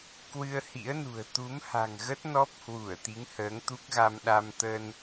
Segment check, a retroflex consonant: absent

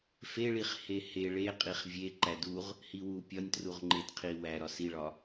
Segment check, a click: present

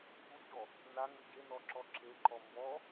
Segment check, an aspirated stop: absent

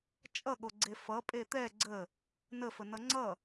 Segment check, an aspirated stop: absent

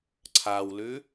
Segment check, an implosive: absent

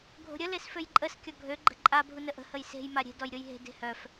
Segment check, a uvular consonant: absent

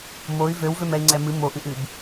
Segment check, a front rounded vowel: present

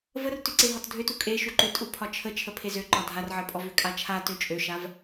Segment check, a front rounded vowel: present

